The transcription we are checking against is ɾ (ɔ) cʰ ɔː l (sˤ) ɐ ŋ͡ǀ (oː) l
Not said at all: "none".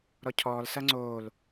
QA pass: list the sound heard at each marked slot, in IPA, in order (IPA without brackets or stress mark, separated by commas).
ɔ, s, oː